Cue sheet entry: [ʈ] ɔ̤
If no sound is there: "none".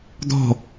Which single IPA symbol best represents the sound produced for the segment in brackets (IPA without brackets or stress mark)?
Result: d̪